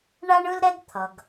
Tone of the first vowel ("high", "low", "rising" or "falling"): high